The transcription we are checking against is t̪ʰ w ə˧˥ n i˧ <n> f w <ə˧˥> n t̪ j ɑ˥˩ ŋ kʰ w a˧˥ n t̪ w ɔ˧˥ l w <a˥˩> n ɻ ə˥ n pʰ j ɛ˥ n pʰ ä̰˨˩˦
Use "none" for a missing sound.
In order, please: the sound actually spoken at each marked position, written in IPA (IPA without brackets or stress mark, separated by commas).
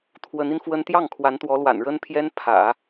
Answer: n, ə˥, a̰˨˩